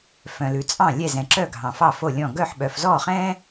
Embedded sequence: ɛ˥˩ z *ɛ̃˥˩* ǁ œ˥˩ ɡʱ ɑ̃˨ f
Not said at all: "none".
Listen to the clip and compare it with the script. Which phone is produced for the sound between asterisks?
ɛ̃˨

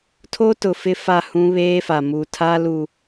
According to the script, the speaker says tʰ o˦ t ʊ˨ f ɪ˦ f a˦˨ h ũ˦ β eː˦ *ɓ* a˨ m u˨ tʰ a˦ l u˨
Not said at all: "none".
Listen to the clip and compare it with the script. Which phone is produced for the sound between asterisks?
f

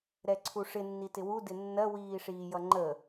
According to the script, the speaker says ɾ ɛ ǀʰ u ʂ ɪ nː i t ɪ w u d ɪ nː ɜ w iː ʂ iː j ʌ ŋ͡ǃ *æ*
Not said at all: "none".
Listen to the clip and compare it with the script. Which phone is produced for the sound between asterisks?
ə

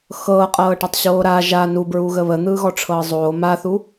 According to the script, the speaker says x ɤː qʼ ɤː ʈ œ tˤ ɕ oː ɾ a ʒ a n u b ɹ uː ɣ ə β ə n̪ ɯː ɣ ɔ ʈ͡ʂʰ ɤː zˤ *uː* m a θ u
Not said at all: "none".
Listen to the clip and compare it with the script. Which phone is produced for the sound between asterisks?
oː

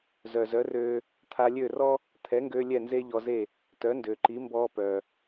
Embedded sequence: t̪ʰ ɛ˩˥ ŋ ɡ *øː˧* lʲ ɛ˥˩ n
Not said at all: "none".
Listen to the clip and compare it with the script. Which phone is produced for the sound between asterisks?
øː˧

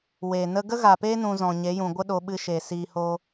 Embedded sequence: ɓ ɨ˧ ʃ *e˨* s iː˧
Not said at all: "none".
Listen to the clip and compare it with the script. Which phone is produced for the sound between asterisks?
e˨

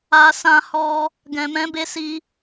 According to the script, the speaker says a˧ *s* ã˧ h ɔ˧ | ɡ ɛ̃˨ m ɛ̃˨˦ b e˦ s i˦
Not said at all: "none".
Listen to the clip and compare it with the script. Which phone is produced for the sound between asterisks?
s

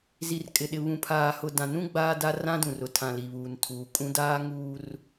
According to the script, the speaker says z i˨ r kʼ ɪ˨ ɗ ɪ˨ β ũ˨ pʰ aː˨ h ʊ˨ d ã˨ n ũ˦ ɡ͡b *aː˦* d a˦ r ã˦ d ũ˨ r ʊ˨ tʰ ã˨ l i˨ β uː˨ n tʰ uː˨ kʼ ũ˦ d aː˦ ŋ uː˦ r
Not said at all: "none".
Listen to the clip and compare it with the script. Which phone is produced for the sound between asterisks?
aː˦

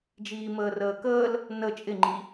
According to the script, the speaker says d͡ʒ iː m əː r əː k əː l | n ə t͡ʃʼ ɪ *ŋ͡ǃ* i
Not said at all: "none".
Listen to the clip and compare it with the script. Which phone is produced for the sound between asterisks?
ŋ͡ǃ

